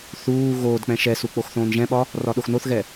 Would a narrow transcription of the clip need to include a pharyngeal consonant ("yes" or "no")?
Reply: no